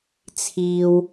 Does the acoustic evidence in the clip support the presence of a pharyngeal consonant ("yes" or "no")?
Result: no